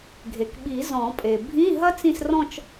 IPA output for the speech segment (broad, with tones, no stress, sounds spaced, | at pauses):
ɡʱ e˩ k ɓ i˨˩˦ z ɔ̃˨˩˦ pʼ e˩ bʱ ĩ˧˥˧ ɦ ɐ˥ t͡s ĩ˥˧ s r ɔ̃˥˧ t͡ʃ